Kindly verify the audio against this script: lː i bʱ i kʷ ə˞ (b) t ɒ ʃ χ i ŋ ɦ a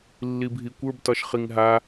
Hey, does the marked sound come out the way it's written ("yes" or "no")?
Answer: yes